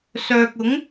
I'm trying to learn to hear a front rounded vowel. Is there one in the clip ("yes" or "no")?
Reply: yes